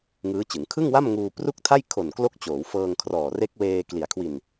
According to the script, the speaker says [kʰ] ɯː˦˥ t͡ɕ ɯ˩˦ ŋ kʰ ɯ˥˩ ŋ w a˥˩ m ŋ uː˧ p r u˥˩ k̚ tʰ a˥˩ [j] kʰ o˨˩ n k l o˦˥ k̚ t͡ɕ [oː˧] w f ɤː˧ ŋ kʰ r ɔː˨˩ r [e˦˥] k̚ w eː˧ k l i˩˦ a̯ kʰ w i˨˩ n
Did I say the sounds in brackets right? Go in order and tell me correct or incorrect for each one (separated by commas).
incorrect, correct, incorrect, correct